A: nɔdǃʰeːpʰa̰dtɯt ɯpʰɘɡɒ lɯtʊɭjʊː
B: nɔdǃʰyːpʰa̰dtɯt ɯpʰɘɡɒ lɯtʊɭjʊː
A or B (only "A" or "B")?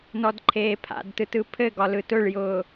A